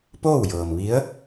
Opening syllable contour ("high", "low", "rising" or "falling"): falling